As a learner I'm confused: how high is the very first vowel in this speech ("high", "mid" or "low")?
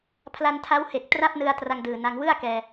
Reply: low